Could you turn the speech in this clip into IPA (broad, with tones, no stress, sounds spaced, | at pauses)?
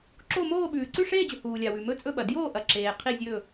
ǁ o˥˧ m oː˥˧ ɓ ʉː˨ ǀ ʉ˥˧ ʂ eː˥˧ d͡ʑ ɵ˨ h uː˨ lʲ a˨ w ʉ˨ m ɵ˥˧ t͡sʼ ɵ˥˧ ɓ ɐ˨ d j oː˥˧ ʔ ɐ˨ ǁ eː˨ qʰ i˥˧ zʲ ɵ˥˧